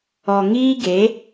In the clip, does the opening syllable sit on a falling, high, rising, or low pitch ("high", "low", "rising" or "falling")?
low